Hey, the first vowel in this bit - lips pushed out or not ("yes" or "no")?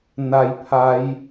no